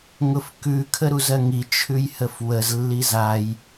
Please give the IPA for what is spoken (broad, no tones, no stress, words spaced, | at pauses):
ŋʊfkʉ kʰəɾuzɜŋi t͡ʃʰʉjhəfwəz lːizaj